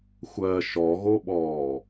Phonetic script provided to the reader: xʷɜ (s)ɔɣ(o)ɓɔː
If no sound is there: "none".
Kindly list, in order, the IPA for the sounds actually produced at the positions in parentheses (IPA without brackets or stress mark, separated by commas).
ʃ, o